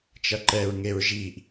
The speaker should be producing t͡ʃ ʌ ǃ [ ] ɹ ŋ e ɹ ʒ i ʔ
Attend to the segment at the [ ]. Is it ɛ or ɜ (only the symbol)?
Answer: ɛ